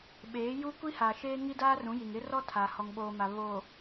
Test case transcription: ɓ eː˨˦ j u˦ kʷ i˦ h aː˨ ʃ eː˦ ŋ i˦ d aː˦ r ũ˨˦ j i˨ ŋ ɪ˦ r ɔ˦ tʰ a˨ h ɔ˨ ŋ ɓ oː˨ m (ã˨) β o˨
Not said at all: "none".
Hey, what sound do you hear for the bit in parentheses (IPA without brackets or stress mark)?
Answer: a˨